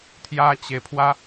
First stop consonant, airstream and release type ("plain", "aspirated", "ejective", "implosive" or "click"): aspirated